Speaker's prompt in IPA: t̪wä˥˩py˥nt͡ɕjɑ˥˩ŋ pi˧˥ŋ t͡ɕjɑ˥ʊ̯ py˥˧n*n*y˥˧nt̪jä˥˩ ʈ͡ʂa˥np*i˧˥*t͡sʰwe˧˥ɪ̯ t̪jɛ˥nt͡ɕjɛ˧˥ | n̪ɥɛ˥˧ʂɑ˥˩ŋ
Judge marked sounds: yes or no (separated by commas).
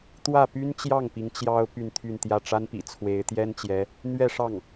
no, no